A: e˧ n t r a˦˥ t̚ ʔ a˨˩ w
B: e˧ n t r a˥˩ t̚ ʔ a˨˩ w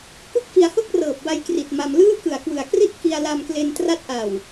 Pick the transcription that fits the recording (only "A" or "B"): A